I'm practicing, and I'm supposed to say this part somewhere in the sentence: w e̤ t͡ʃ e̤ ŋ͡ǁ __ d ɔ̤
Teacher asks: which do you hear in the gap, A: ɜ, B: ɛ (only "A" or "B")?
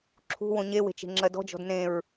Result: A